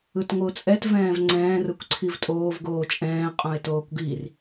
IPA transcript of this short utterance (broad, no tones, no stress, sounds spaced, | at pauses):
ɯ t ŋʷ ɯ ʊ̯ t͡sʼ ɛ t v ɛ̃ː v ŋ͡ǀ ɛ̃ː r ɯ kʷ ǀʰ i v tʼ oː v ɡ oː t͡ʃʼ ɛ̃ː qʼ õ ɪ̯ t oː kʷ ɡ i r